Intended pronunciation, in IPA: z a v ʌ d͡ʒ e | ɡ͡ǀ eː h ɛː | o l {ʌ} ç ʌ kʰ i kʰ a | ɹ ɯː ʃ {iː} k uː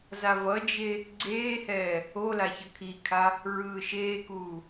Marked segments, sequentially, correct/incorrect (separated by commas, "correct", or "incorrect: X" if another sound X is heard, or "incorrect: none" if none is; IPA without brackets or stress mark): incorrect: a, incorrect: eː